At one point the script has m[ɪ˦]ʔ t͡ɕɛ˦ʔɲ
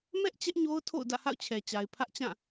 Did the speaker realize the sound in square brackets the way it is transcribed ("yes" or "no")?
no